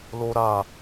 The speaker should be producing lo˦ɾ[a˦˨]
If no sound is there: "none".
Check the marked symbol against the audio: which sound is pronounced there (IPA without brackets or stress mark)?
a˦˨